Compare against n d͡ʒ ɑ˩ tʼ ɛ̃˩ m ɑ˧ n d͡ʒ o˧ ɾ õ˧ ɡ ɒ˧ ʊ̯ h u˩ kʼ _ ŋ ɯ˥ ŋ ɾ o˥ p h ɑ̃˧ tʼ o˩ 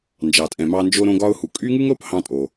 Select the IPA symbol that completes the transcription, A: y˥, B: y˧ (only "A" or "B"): A